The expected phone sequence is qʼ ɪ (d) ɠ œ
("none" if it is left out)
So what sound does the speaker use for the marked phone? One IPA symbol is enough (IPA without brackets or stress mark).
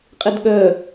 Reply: d